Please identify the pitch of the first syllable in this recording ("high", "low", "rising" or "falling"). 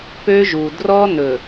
high